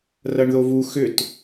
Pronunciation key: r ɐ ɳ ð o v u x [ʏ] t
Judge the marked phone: correct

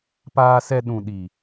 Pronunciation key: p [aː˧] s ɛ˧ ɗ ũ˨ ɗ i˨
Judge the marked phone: correct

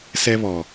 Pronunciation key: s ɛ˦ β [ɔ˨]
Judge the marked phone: correct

